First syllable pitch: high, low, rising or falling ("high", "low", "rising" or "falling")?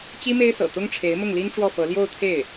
high